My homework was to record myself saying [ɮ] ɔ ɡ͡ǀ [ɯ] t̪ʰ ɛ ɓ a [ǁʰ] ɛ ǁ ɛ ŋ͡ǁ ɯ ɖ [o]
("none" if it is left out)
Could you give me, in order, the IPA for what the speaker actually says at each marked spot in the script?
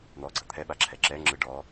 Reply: n̪, ɤ, ǁʰ, ɔ

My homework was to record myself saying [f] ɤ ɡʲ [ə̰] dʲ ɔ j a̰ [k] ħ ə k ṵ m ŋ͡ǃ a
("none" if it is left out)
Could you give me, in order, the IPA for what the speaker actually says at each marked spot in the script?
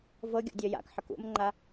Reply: v, ɔ̰, k

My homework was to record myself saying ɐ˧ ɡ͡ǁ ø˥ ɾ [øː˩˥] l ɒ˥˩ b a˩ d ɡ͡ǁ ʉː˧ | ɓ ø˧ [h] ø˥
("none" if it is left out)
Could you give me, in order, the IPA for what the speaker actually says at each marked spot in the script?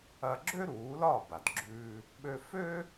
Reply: uː˩˥, f

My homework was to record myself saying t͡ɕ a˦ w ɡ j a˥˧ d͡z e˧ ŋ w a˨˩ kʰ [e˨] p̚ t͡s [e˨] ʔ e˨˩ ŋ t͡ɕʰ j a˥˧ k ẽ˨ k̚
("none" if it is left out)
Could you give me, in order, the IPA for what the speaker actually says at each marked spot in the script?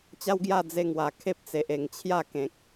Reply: e˦, e˨

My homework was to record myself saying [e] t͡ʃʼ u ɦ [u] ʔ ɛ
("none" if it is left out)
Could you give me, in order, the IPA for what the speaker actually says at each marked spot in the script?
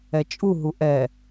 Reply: ɛ, u

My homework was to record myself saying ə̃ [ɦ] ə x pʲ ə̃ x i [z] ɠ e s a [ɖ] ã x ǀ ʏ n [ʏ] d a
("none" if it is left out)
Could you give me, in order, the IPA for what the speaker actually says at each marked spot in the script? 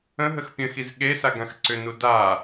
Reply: ɦ, z, ɡ, u

